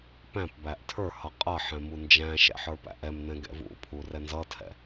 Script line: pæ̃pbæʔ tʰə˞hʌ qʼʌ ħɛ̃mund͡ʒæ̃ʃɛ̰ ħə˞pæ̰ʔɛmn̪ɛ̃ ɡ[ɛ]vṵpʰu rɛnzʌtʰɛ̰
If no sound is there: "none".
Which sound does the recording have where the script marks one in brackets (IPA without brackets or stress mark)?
ɛ̰